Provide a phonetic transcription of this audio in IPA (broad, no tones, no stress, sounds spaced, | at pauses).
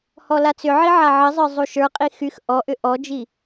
h ɔ l a t͡s ʏ ʕ i ʕ a ʕ ɘ zˤ ə˞ zˤ u ʃ ə˞ qʼ i x y x ʔ ɔ ʔ ʏ ʔ ɔ d͡ʒ i